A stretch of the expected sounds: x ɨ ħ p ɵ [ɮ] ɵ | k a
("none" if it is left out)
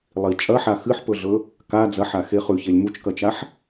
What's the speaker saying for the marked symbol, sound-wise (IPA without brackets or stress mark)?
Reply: ɮ